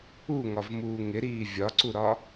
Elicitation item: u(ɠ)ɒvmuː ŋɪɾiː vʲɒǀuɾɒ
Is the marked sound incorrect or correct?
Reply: incorrect